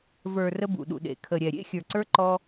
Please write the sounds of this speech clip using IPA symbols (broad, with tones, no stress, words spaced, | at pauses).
və˞˨ rə˦bṵ˨ɗṵ˨ɗḛ˨ kʰə˨ɾʲɛ˨ ɾʲḛ˦xʲə˞˨ǀə˞˦ ǃɔ˦